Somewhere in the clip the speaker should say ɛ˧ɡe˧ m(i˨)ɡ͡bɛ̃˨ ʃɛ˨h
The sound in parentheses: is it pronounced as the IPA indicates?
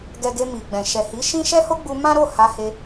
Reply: yes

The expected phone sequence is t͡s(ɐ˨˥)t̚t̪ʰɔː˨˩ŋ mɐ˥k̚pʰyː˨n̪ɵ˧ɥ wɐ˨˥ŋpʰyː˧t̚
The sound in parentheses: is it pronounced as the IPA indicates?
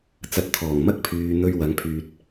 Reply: yes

